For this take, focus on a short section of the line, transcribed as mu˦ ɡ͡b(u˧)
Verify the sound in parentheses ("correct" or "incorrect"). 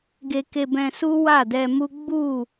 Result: incorrect